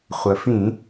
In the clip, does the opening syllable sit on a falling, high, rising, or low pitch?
low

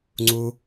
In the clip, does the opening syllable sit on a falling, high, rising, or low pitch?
high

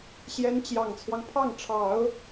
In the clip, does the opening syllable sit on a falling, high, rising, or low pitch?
rising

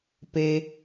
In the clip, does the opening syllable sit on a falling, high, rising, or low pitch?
low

